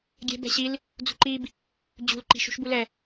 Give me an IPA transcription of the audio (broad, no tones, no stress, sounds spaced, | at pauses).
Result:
ɡʲ ɛ̤ b ɛ̤ ɕ i l | d͡z ṳ ǃ i b | d͡ʑ ṳ l ǃ i̤ ʃ ṳ ʃ b u l ɛ